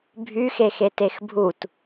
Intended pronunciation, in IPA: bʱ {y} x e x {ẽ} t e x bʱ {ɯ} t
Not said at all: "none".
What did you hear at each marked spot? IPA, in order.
y, e, u

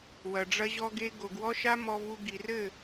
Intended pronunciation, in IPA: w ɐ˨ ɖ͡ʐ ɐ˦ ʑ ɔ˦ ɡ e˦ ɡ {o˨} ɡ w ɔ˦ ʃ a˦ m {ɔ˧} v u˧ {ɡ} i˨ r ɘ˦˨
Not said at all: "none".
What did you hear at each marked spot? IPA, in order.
o˨, ɔ˧, ɡ

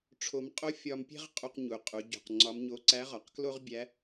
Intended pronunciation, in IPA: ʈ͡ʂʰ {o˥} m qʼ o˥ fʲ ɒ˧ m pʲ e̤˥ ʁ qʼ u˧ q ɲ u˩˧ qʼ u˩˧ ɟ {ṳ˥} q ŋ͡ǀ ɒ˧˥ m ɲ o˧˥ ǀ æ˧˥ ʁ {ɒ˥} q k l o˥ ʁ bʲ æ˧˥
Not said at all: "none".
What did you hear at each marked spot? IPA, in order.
o˧, ṳ˩, ɒ˩˧

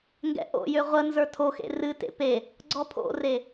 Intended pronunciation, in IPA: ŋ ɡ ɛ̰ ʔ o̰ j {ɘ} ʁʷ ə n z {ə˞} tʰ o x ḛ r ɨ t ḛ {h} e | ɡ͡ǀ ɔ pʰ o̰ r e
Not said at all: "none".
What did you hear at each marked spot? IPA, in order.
ø, ə˞, p

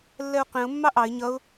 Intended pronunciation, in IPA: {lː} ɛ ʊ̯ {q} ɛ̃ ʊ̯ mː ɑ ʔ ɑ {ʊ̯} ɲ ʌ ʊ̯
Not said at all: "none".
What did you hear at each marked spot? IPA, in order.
lː, q, ɪ̯

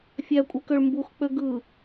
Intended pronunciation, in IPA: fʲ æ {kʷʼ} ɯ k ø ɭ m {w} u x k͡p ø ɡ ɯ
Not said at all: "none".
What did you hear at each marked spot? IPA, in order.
kʷʼ, b

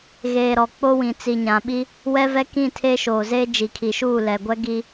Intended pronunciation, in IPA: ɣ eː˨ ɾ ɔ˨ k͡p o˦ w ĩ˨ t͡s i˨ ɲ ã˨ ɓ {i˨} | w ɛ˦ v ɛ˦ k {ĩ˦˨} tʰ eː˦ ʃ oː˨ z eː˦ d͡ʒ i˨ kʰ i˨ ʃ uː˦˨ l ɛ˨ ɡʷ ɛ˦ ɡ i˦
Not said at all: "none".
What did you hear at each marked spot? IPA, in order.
i˦, ĩ˦˨

